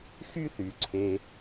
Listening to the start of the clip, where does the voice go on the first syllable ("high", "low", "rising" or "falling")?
high